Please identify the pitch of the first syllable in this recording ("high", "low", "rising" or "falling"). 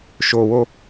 low